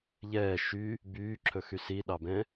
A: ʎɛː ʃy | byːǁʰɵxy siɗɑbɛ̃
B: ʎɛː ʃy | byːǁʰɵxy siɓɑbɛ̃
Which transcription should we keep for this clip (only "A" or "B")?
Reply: A